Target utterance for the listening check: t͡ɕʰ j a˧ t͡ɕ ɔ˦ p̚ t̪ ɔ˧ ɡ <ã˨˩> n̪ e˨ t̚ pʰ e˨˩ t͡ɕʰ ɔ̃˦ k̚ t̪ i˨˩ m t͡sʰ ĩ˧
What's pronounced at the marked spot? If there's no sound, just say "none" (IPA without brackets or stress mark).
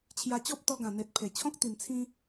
ã˨˩